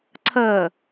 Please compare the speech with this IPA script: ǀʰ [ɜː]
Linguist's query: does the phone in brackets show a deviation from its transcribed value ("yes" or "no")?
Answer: no